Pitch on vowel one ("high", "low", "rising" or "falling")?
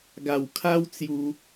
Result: low